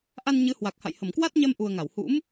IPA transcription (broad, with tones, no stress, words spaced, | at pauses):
ʔa˧n ɲɨ˨˦hwa˨˩k̚ha̰˧˨j hə˧˩mkwa˦˥t̚ɲɛ˧m ʔu˨˩ə̯ ŋa˧˩whṵ˧˥m